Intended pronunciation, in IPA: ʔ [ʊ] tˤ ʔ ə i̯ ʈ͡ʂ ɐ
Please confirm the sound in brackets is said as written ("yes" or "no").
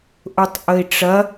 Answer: yes